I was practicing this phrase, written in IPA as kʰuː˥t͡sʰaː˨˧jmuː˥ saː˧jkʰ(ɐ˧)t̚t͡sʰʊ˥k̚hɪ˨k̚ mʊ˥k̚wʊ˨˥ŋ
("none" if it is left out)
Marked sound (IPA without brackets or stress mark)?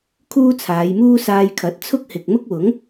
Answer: ɐ˨˥